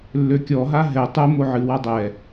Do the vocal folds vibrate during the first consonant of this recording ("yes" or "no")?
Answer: yes